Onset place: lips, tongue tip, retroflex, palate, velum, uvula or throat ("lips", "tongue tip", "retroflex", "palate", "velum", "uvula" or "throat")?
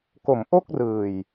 velum